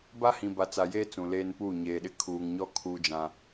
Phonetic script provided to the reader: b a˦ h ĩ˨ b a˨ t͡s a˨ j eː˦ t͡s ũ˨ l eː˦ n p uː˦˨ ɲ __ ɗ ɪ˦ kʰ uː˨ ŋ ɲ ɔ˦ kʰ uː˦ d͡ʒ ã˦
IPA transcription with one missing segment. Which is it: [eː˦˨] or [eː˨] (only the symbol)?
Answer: eː˨